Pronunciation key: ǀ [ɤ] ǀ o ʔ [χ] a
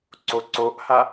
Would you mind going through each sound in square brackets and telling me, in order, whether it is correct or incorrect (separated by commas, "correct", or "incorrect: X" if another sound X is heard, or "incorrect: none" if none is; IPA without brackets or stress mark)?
incorrect: o, incorrect: h